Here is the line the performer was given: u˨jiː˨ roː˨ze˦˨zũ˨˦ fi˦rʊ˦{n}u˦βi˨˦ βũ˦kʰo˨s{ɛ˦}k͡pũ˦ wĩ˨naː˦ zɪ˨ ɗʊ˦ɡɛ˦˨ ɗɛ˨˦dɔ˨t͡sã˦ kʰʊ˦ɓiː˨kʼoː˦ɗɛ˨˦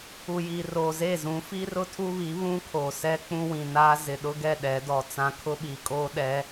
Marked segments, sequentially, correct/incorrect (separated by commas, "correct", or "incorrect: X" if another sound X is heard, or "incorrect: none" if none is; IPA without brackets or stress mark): incorrect: tʰ, correct